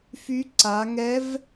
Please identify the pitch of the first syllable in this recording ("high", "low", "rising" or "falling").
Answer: rising